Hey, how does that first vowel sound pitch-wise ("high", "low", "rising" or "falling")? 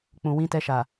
low